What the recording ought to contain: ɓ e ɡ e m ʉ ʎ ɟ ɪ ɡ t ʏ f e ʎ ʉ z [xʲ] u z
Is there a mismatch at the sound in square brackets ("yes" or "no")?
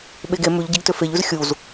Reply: no